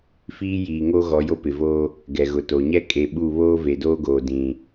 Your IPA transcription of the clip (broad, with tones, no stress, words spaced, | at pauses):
fiː˦jiː˨ŋo˦ ɣɔ˨˦jo˦pɪ˨voː˦ | ɡɛ˨ɣʊ˨to˨ɲɛ˦ kʼe˨ɓu˦˨ βoː˦ve˨doː˦ɡoː˨ dĩ˨